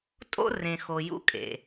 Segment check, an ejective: present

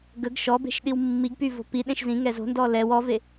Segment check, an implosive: present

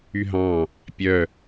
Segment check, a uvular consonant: absent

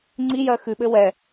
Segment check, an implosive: present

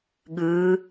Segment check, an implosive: present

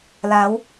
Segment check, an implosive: absent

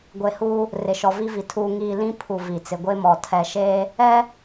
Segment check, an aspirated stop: present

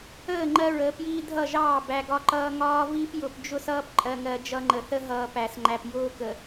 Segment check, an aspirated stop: absent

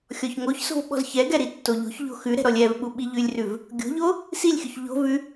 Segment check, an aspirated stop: absent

